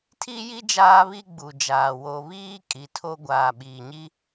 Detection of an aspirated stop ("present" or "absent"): present